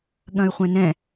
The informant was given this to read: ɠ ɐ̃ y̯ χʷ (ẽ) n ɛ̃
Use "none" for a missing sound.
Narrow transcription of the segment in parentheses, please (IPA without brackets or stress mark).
ɛ̃